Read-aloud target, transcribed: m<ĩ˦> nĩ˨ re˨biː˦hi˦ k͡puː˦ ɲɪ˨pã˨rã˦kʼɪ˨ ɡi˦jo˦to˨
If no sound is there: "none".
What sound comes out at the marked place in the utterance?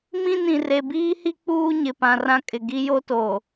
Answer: ĩ˦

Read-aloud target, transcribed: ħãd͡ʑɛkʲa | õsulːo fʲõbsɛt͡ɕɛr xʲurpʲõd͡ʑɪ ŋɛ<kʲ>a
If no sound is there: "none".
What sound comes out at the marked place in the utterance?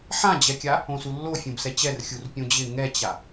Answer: t͡ɕ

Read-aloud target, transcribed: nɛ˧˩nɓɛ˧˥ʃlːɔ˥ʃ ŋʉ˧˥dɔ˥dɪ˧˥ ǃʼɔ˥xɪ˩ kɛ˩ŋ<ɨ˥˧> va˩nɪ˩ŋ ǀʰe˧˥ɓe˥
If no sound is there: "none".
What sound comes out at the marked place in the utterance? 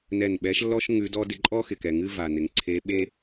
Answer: ɨ˥˧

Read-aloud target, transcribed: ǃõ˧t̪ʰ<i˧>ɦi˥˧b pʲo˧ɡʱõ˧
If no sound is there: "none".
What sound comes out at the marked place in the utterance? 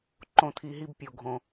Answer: i˧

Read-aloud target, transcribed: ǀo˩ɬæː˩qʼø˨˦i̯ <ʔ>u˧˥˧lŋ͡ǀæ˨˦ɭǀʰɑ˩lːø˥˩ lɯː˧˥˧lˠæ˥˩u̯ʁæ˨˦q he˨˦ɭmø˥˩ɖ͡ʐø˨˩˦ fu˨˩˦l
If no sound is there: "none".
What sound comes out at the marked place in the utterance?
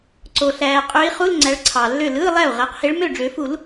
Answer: χ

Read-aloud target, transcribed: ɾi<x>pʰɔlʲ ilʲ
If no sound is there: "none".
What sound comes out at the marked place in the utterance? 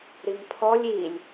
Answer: ŋ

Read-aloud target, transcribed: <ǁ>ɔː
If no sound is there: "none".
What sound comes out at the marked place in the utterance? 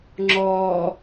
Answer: ŋ͡ǁ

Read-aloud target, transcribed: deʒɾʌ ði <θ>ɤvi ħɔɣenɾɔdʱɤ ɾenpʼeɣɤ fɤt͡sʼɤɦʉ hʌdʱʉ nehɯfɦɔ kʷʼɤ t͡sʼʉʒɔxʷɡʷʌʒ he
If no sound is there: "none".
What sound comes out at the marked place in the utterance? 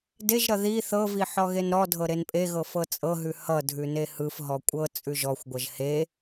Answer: θ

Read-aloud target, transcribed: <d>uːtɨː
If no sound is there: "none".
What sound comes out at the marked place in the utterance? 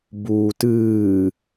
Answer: b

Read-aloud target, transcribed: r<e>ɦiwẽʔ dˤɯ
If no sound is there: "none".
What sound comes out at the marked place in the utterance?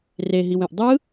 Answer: e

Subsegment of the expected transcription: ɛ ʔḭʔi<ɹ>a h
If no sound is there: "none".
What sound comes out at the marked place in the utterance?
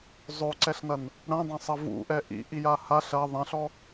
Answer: j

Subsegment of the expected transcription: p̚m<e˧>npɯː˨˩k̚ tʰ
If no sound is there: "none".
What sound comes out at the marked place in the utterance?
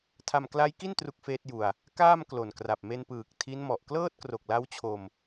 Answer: e˧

